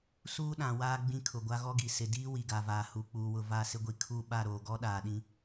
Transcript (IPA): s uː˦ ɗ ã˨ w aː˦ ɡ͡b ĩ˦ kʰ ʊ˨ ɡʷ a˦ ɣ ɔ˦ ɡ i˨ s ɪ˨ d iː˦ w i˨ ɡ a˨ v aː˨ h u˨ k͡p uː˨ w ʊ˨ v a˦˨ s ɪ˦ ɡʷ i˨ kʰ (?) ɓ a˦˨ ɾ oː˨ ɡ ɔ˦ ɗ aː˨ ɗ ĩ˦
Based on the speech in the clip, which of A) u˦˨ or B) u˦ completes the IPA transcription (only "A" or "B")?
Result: A